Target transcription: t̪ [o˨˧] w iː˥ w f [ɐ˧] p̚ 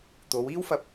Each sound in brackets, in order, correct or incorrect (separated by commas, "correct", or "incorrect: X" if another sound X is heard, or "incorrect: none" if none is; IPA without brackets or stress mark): correct, correct